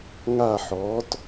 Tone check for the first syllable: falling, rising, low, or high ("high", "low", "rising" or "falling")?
falling